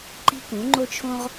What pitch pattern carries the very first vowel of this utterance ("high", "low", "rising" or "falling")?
high